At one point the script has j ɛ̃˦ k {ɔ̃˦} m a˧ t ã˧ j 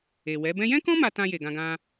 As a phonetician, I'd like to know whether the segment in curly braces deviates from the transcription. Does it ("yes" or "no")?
no